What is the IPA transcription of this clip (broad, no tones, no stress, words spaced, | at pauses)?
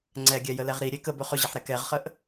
ŋ͡ǀɛɡʲɛjəlɛʁ ɾiɾʲe kəbɵ χɵʑiħɾɛ kɛʁχəʔ